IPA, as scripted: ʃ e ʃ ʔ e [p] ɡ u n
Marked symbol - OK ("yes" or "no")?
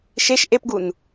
yes